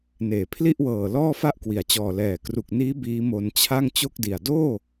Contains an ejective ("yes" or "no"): no